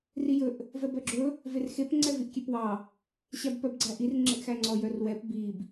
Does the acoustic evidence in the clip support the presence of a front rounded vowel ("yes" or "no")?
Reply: yes